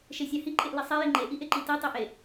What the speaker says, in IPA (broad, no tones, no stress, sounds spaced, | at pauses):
ʃ e sʲ ɑ h i ǃʼ e ʔ l i sˤ e j i ŋ͡ǃ e ʔ i ʔ e ǃ i t i tˤ i ʔ e